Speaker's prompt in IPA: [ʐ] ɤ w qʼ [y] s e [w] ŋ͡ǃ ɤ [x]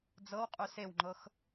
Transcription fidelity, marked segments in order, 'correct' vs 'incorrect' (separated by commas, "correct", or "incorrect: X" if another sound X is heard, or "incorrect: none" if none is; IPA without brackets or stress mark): incorrect: d͡z, correct, correct, correct